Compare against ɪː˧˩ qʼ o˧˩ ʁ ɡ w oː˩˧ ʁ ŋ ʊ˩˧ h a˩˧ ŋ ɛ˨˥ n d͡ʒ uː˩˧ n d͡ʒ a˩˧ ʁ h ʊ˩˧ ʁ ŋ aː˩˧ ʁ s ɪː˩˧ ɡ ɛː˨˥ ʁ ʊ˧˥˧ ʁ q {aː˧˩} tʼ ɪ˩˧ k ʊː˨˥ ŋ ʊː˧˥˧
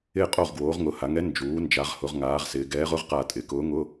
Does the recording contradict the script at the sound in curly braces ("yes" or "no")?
no